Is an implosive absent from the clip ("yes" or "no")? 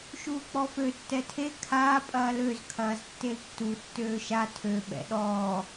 no